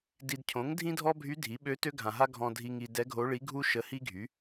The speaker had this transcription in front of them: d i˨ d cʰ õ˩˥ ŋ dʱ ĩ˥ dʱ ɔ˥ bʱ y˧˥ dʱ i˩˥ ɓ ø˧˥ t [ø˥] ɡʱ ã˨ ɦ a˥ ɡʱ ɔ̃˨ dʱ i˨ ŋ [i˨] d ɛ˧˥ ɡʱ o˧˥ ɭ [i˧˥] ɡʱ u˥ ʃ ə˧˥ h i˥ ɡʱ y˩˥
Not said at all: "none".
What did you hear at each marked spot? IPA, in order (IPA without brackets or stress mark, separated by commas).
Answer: ø˥, i˨, i˧˥